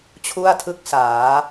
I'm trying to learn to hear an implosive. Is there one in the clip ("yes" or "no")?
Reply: no